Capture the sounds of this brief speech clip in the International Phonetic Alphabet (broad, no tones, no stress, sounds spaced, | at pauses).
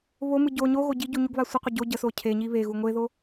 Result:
β o m ɯ ɟ o ɲ o ɣ o ɟ i ɟ u ɲ u ɡ β a sʷ ə qʷ ə ɟ o ɟ ə s o cʰ e ɲ i β e ɣ u ŋʷ e ð o